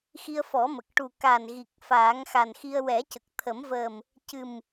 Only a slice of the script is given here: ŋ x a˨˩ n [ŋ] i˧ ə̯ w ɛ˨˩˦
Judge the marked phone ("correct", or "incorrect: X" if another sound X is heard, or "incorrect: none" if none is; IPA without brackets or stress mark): incorrect: x